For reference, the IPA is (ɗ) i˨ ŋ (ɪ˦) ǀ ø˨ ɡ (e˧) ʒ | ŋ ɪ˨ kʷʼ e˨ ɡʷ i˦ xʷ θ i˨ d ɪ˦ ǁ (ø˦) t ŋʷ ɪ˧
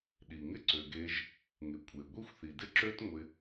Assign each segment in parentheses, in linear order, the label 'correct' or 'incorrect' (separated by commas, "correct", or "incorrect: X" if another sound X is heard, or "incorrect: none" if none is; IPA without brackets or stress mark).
correct, correct, correct, correct